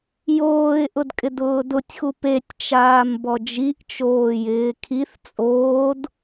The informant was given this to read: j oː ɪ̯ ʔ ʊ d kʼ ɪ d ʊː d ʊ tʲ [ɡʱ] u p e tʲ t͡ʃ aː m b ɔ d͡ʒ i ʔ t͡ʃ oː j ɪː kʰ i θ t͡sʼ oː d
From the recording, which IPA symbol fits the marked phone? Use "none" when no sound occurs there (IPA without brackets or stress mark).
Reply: x